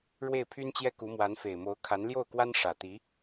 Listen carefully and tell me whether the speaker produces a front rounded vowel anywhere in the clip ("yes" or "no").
yes